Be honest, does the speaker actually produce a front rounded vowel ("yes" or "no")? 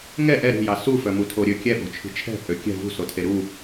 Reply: yes